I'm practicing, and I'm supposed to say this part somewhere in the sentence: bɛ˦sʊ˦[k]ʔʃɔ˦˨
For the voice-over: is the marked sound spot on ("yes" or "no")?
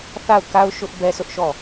no